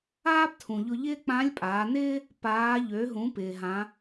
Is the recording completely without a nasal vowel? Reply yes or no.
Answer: no